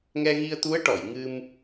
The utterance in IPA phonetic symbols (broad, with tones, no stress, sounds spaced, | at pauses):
ŋ ɛ˧ ɣ i˧ ə̯ t̪ u˧˥ ə̯ ʈ ɔ˨˩˨ j ŋ ɨ˧ m